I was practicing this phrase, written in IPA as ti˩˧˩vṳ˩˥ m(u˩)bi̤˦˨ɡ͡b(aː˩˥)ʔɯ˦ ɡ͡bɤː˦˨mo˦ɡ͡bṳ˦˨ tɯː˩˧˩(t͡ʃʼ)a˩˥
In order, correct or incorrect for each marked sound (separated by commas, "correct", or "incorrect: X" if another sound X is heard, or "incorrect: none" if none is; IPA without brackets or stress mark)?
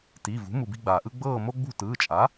correct, incorrect: aː˩, correct